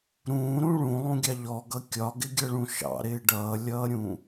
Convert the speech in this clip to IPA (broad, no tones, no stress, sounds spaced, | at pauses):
ɾ ũː ɾ ũ ɭ ũ lˠ ũ ɡʲ ɑ ʎ ɔ ɡ ʌ kʲ ɒ ɡ ɪ ɡʲ ʌ ɭ ũ ʃ ɑ̰ ɾ ɪː ɖ ʌː lʲ ʌː ɾʲ ũ